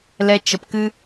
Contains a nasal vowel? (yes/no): no